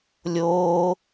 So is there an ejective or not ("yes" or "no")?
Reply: no